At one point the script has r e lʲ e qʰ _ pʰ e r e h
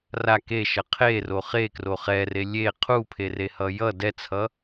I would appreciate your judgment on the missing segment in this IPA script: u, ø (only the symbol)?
u